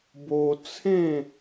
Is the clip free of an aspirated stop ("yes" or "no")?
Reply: no